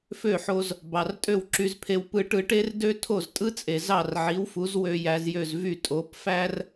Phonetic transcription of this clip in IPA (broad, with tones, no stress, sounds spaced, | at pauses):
f ø˥˩ ħ o˧ z | b ɑ˩ r tʼ ø˥˩ w ǁ y˧ z pʰ e˧ w p ɯ˧ ʈ ɯ˧ ʈ e˥ r d ø˥ tʰ o˥˩ z tʼ ɯ˥ t͡sʼ e˩ z ɑ˥˩ r ʕ i˩˥ w f u˩˥ z w ø˧ j æ˧ z j ø˥˩ z v y˥˩ tʼ o˩˥ p f æ˥ r